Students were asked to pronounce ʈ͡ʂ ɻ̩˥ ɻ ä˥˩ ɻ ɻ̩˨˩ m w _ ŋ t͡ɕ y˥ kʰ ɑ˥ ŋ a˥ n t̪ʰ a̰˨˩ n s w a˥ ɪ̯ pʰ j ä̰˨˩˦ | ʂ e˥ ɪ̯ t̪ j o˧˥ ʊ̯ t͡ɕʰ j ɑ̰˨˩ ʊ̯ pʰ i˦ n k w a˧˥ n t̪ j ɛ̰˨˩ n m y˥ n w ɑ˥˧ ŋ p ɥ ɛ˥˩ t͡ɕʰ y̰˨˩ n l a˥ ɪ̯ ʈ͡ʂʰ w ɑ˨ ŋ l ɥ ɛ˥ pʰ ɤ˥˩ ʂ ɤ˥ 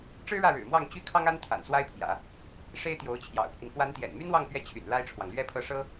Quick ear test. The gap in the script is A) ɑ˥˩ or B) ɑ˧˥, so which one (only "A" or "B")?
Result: A